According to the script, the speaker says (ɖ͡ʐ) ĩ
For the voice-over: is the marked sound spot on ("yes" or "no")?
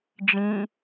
no